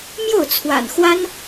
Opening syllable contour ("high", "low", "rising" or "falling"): falling